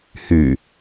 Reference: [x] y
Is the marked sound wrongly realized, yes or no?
yes